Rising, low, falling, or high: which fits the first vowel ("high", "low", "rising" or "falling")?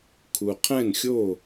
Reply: low